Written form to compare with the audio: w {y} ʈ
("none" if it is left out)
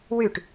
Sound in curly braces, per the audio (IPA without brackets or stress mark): y